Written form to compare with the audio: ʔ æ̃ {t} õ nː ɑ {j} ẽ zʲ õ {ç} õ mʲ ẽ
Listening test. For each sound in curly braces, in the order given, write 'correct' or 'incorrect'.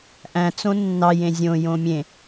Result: incorrect, correct, incorrect

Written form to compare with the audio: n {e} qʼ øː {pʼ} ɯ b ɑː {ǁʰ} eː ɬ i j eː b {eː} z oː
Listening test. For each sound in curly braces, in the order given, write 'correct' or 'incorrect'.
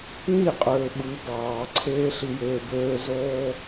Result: incorrect, incorrect, incorrect, incorrect

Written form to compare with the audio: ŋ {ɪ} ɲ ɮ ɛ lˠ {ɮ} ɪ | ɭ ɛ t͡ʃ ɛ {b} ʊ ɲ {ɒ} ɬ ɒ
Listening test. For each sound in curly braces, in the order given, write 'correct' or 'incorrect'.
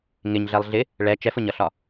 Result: correct, correct, incorrect, incorrect

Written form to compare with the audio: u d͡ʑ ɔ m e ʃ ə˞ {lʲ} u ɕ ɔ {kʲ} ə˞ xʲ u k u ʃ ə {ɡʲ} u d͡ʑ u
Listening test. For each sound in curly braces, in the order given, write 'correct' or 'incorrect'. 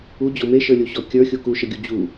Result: correct, correct, correct

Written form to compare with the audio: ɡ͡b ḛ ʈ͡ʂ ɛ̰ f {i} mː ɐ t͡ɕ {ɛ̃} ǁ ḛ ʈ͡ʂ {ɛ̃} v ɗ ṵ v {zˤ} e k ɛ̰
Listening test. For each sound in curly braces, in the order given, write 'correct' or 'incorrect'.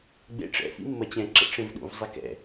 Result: incorrect, correct, incorrect, correct

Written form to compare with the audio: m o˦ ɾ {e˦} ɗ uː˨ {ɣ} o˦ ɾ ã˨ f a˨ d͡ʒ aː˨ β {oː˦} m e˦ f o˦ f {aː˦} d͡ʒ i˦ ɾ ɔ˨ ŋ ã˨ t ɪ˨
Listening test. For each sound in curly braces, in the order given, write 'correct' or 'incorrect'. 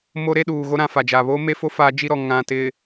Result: correct, correct, correct, correct

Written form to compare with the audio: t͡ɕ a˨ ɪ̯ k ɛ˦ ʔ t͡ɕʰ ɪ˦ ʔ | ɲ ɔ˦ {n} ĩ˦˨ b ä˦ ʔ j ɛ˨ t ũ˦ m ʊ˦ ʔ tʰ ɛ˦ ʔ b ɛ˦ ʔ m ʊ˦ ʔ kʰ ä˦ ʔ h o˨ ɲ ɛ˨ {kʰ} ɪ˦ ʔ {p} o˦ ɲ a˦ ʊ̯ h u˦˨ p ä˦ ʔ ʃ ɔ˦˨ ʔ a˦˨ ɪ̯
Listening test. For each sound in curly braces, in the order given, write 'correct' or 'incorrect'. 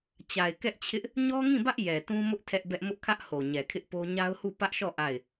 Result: incorrect, correct, correct

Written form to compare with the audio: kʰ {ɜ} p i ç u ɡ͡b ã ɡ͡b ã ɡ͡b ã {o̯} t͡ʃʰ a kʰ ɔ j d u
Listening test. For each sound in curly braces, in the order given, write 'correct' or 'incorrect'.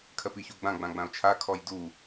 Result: correct, correct

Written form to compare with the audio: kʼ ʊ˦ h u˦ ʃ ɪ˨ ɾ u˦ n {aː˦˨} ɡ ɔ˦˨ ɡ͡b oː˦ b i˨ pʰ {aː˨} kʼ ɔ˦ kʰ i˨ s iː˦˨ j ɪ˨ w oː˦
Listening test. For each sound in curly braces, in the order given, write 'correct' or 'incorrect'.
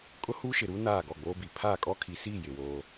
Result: correct, incorrect

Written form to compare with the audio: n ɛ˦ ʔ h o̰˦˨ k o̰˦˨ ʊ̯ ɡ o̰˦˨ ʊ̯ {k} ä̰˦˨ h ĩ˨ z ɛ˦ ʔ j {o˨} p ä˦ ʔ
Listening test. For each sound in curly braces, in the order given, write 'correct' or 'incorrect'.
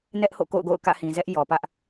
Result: correct, incorrect

